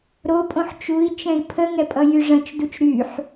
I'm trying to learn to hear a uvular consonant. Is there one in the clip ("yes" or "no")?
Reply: no